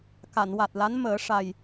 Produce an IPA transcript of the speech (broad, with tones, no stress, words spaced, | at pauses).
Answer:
ka˨˩˨nwa˨˩t̚la˧˥n məː˨˩˦ ʂa˨˩j